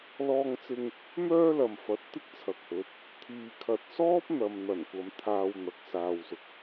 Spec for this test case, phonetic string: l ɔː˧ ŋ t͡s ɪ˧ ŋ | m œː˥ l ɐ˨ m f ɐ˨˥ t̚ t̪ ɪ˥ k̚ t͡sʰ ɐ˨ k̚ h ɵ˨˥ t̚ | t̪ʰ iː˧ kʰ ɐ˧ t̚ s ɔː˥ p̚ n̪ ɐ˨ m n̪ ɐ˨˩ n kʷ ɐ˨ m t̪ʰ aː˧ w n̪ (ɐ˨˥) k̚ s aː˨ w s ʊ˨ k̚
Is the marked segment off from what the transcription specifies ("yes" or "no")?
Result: no